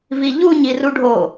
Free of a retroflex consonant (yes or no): no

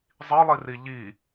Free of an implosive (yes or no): yes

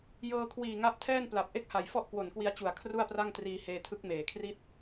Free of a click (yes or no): yes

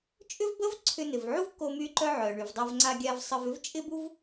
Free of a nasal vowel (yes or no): yes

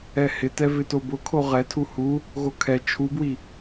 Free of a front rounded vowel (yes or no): yes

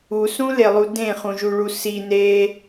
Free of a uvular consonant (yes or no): no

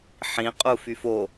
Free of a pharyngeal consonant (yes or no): no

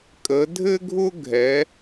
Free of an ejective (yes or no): no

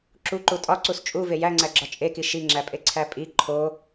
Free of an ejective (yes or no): no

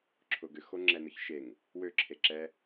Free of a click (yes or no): no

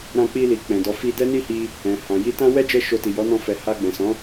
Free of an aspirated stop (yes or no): yes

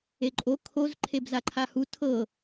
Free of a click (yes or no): no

